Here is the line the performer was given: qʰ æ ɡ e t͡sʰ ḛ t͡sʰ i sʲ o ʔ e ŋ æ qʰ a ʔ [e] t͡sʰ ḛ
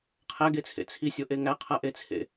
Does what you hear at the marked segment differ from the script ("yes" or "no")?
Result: no